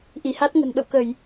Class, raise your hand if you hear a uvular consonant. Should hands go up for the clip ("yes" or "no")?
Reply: no